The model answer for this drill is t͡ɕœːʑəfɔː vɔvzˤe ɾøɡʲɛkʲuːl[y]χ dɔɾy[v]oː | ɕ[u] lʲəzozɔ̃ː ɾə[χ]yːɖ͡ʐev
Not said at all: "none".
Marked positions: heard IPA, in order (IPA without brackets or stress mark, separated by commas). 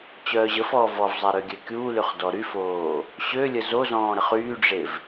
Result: y, f, ø, χ